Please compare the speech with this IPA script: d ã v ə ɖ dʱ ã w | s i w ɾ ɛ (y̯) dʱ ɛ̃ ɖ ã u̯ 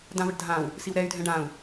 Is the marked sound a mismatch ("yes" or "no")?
no